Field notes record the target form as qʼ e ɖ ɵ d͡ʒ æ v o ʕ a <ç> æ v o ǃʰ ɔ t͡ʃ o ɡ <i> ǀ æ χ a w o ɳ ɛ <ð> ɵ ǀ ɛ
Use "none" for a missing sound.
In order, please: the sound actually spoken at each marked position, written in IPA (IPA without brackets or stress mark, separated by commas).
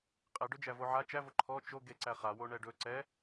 t͡ʃ, e, ɖ